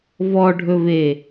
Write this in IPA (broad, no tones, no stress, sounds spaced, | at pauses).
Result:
v ɔ ɖʱ ɵ v e